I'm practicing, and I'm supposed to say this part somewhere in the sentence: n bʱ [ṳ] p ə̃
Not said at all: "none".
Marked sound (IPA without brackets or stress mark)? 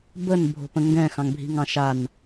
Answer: o̤